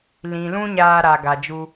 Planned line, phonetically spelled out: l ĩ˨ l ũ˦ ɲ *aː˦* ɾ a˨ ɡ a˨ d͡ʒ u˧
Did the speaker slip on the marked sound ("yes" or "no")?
yes